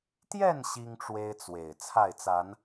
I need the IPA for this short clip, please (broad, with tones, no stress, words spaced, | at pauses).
t̪jɛ˥˨n ɕi˦ŋʈ͡ʂwe˦ɪ̯t͡swe˨˩ɪ̯ t͡sʰa˥˨ɪ̯t͡sa˨˦n